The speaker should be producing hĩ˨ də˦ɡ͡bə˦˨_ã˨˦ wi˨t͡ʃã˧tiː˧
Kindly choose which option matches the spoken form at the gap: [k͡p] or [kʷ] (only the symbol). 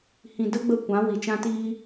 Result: kʷ